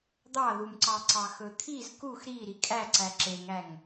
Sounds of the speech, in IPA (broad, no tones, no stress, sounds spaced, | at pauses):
d̪ ɑ ð u m ǀ ɑ ǀ ɑ x ɵ t̪ʰ i z k u x ɾ i ɾ i kʼ æ ǀ æ ǁ e ŋ æ ŋ